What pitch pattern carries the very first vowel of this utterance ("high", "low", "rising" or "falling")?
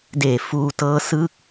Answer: low